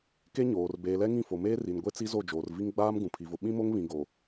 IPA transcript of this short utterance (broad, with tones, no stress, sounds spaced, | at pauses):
k e˦ ɲ oː˨ r b eː˨ l ɛ˦ ŋ ĩ˦˨ f o˨ m eː˦ r i˨ n ɡʷ e˦ t͡s i˦ z o˦˨ d͡ʒ oː˨ r v i˦ ŋ ɡ͡b aː˦ m ɡ ũ˨ pʰ i˨ v ʊ˨ ɓ ĩ˦ m o˦ ŋ β ĩ˨ ɡ o˨